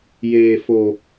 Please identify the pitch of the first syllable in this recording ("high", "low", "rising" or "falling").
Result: low